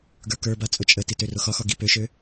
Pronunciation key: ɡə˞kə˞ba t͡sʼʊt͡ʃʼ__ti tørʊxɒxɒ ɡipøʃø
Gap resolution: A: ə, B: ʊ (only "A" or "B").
A